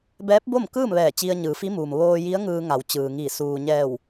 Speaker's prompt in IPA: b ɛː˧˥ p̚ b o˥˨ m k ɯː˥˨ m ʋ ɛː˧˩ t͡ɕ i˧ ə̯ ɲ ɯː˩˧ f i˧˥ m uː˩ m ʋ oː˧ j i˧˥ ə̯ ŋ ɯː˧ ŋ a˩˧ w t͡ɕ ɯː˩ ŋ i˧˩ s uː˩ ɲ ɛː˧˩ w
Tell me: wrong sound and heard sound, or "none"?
none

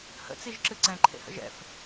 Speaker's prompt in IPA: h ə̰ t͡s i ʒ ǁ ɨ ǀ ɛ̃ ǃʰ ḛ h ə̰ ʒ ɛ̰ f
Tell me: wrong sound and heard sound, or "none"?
none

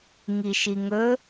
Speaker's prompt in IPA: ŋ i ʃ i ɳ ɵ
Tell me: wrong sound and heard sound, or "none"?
ɳ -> ŋ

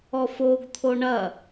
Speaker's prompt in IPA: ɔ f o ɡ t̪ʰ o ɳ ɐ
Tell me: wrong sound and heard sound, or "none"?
none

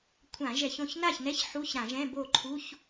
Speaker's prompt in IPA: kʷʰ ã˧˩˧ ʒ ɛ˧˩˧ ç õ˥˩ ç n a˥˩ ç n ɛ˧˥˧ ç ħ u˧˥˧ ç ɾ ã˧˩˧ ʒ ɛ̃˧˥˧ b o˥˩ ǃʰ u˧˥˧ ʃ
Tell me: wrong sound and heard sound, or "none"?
ʃ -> ç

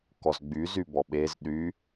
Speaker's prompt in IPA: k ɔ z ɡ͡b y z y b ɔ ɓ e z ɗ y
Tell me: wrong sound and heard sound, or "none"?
none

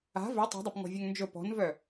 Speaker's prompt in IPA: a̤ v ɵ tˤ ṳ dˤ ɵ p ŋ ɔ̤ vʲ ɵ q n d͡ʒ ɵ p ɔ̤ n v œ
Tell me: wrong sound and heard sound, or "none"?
q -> ŋ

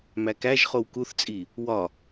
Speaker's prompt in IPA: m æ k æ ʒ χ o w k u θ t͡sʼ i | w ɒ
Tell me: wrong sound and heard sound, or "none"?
none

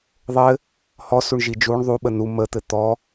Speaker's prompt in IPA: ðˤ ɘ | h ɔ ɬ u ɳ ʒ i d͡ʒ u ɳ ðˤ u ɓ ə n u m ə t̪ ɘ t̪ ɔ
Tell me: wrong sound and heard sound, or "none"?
ɬ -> s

